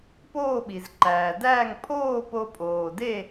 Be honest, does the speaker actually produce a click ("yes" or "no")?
yes